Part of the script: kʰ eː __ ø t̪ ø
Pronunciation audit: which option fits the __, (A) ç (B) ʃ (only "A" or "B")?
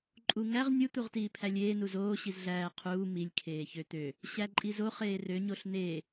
A